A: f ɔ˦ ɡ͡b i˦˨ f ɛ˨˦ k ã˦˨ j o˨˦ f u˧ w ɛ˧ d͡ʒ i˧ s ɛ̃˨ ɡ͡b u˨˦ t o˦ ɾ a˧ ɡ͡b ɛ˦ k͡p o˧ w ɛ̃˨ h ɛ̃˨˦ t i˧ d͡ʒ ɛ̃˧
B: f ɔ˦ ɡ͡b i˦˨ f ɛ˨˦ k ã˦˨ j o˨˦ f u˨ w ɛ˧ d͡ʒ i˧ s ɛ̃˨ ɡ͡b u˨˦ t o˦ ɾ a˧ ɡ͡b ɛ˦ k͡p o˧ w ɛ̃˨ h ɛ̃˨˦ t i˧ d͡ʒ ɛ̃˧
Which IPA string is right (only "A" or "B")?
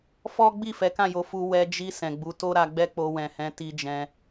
A